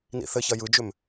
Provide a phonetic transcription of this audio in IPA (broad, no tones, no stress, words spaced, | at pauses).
nḭθɘçɐ jɯd͡ʒʏm